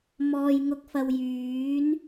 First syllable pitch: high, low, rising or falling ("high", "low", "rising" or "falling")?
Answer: low